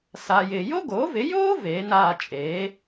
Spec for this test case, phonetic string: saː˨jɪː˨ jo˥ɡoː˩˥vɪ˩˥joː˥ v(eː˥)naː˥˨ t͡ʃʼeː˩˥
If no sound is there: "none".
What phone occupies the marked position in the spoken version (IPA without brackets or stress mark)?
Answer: eː˩˥